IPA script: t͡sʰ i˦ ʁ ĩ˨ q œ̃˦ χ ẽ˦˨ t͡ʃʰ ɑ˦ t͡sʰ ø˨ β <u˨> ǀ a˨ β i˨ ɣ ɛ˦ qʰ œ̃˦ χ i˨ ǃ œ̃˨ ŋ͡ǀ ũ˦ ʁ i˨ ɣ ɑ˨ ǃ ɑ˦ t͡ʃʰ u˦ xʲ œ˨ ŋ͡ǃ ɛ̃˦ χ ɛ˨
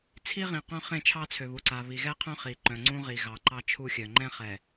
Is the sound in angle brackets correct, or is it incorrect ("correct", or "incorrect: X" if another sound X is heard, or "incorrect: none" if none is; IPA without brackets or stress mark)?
correct